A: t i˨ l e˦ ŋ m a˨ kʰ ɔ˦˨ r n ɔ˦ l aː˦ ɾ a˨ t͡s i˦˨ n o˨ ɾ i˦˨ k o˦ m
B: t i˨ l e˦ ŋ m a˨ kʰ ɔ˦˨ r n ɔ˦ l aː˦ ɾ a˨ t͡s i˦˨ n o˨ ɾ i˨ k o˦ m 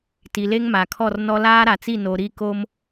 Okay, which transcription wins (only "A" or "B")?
A